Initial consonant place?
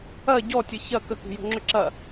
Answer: palatal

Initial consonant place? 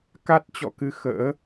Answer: velar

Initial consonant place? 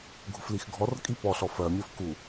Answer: velar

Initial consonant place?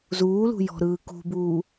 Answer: alveolar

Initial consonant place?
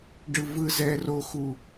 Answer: retroflex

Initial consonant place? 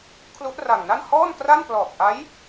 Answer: velar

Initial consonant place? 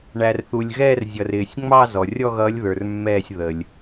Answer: retroflex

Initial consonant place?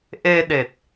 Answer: glottal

